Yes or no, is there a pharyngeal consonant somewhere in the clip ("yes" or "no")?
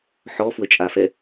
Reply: yes